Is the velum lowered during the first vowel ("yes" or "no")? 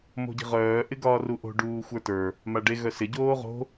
no